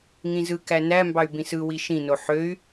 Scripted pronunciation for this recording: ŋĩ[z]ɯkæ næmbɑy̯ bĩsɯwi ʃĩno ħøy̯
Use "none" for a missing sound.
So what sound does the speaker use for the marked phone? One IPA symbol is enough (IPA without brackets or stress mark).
z